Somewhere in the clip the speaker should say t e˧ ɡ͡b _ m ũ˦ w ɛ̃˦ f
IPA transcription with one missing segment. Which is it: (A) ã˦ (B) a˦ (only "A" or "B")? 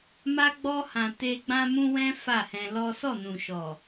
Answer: A